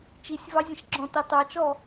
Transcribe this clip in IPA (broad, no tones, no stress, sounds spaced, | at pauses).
t͡ʃ i sʲ v ɑ zʲ ə̃ ʃ ɡ͡ǁ ɔ̃ t ɑ t ɑ t͡ʃ ɔ